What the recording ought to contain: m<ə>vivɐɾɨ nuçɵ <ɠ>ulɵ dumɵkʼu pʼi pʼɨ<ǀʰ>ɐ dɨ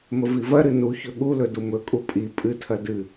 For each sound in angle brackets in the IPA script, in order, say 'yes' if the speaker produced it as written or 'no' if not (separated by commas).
yes, yes, no